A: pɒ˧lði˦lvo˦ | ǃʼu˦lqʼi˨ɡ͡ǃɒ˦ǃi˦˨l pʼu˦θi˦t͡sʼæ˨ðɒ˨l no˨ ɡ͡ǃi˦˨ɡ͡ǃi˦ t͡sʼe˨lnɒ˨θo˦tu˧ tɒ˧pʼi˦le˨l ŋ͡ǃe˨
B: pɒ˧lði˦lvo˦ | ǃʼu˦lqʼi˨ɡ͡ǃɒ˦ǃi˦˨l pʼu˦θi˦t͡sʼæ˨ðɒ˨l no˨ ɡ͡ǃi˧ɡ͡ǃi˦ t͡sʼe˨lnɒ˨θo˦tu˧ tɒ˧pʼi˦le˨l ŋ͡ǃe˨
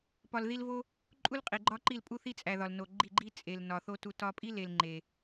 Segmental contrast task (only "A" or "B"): A